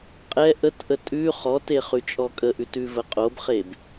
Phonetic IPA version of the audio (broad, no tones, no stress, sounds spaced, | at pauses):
qʼ ɛ ʔ ə t ʔ ə tʼ ʉ χ ɔ t e χ ʉ t͡ʃʼ ɔ kʼ ə ʔ ʉ t ʉ v ə qʼ o b χ e b